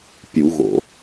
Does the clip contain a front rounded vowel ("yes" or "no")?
no